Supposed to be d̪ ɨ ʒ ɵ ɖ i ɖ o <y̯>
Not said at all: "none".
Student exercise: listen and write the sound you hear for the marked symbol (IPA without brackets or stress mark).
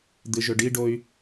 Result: y̯